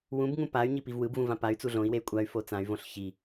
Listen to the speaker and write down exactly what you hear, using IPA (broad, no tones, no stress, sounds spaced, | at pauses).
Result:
w ũ b ŋ ũ p a y̯ ɲ i p i v w ɯ b v ũ v ã p a y̯ t͡s u ɮ õ i̯ w e y̯ kʷʼ a y̯ f o t͡s ã y̯ v õ ɬ ç i